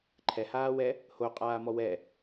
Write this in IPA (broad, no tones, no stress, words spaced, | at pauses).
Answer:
ǃʰɛhaːwɛ | hoqʼaːmɔ wɛ